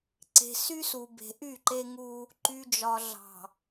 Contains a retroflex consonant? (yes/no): no